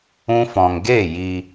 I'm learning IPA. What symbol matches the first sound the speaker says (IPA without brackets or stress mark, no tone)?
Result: ũ